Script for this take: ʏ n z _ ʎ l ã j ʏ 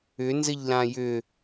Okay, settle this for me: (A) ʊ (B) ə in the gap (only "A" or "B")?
B